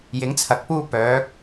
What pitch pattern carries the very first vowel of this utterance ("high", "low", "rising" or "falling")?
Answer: rising